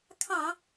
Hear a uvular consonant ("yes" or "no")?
no